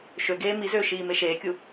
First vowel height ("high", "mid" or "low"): mid